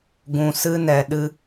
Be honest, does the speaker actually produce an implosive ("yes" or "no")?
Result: yes